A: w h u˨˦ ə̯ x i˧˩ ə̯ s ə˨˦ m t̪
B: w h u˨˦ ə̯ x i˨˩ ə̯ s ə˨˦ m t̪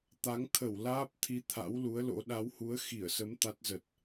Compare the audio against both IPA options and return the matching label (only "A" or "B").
A